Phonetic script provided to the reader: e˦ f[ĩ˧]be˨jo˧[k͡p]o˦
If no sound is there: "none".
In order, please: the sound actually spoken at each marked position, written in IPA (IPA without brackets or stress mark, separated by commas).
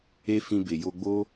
ĩ˧, ɡ͡b